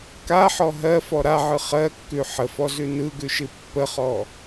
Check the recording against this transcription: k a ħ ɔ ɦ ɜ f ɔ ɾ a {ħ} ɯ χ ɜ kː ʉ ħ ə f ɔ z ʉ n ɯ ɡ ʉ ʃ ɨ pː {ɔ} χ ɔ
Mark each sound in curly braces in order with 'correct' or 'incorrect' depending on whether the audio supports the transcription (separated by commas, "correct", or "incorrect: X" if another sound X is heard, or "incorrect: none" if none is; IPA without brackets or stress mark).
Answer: incorrect: ʕ, incorrect: ə